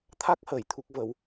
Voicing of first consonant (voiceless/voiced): voiceless